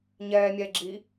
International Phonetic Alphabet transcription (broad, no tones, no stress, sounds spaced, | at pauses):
ɲ ɛː mʲ ɛː ɡ͡ǁ i